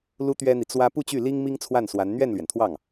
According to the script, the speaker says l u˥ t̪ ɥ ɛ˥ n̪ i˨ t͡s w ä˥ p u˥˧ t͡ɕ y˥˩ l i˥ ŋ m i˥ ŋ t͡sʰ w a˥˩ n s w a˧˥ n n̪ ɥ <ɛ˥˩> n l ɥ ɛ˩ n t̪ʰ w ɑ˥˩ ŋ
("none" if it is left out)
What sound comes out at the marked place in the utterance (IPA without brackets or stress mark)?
ɛ˥˩